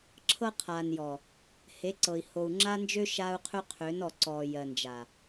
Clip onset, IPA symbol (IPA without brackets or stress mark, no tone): ǁʰ